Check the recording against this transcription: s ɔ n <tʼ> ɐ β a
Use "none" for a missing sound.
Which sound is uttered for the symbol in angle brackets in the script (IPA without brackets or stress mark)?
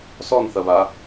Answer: θ